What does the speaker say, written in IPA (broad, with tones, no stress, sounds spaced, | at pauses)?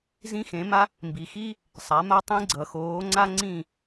z ĩ˥ x ẽ˩˥ m a˥ | m b i˩ x i˥ | sˤ a˩˥ m a˥ tˤ ĩ˥ ɡ͡ǀ ʌ˩ x oː˩˥ ŋ͡ǀ a˥ ŋ͡ǀ ĩ˥˩